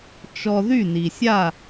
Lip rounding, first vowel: rounded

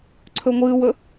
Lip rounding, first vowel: rounded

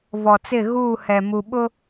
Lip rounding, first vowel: rounded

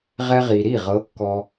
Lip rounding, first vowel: unrounded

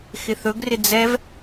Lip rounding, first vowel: unrounded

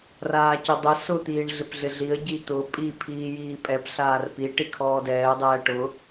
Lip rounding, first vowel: unrounded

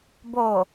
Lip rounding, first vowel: rounded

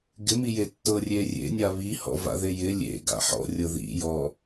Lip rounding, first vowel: unrounded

